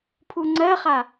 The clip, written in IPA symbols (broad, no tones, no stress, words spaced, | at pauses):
pʰuŋ͡ǀɜχa